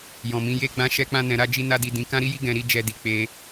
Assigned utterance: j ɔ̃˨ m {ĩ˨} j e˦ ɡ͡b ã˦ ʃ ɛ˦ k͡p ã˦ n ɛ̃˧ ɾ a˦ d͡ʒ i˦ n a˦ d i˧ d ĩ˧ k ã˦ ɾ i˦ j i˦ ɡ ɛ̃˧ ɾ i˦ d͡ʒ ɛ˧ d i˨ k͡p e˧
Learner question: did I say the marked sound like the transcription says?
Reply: no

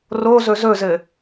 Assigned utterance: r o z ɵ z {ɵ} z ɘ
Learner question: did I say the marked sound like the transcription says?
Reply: yes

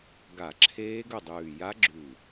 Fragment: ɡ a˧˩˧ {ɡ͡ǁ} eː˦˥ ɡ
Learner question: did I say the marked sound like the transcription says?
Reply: no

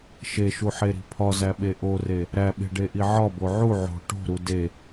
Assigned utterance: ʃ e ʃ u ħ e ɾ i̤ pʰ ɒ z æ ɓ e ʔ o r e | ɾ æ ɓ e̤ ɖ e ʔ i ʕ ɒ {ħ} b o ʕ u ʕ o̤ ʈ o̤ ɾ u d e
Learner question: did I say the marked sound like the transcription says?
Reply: no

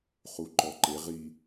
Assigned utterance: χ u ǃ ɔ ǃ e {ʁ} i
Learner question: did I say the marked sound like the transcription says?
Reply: yes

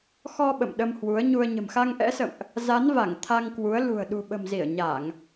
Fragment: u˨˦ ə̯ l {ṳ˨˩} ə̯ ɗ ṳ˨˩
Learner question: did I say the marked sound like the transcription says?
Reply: yes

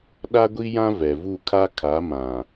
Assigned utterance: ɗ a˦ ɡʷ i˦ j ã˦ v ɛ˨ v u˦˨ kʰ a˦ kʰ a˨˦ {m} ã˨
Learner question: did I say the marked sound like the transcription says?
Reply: yes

